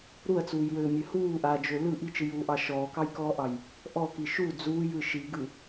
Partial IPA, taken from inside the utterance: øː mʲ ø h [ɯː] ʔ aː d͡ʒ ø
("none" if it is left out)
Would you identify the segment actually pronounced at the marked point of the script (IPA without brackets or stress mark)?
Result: uː